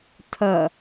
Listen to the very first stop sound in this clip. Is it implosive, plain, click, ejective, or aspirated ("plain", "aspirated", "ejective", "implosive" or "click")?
aspirated